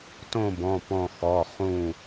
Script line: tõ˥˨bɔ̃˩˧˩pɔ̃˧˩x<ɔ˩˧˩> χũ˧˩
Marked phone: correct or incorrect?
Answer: correct